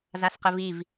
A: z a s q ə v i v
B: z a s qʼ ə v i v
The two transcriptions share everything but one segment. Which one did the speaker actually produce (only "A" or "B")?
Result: A